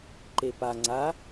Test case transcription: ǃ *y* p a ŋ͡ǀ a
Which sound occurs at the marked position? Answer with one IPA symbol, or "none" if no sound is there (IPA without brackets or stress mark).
e